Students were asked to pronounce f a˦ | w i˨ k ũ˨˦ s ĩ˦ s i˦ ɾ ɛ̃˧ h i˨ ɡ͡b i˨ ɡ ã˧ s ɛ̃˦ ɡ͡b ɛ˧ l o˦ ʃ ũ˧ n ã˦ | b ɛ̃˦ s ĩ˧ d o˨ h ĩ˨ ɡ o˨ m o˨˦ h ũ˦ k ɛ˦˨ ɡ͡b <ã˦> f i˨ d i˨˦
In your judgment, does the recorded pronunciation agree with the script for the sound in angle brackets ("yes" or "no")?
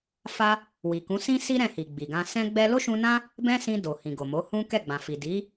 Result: no